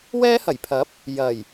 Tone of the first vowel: high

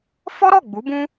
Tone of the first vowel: high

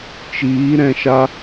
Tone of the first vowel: rising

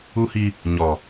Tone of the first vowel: high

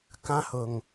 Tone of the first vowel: high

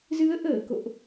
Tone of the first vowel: rising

